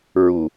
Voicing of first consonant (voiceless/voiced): voiced